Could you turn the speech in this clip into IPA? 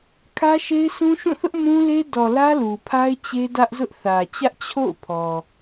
kʰä˦ʃe˦ɪ̯sʰũ˦ ʃũ˦˨θʊ˦ʔ mũ˦le˦ dɔ˨ lä˦lu˨pʰa˦ɪ̯ t͡ɕe˦ dä˦ʔzʊ˦ʔ θä˨t͡ɕä˦ʔ t͡ɕʰo̰˦˨ʊ̯pʰɔ˨

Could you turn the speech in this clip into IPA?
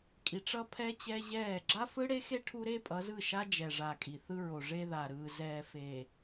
kʼi˨ʈ͡ʂʌ˦pʰɛ˦ t͡ɕɛ˦ʑɛː˦˨ ɡ͡ǁa˦fɯ˦ɽe˦xe˦ ʈʰu˦ɾe˦pʼʌ˨˦zɯ˦˨ ʃa˦d͡ʒɛ˨ ʐa˨kʼi˨θɯ˦ɹo˨ ʐe˦ða˨ɾɯː˨ zɛː˨ feː˨

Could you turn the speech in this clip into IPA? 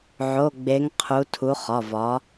ʕo˩˧˩ɡ͡be˩˧ŋ qʰu˩˧tʰu˩˧ χɒ˩˧˩vɒ˩˧

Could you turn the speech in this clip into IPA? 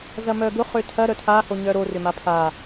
zɐmœɡʊ χøtʰɐ ɾœtʰaho ɲœɾo rʏmapʰa

